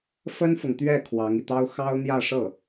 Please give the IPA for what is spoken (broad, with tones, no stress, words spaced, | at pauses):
fə˥nfʊ˨ŋt̪ɥɛ˥˩ kʰwɑ˧˥ŋi˧t̪ɑ˥ʊ̯ xɑ˥ʊ̯n̪jä˥˧ʂɤ˥˩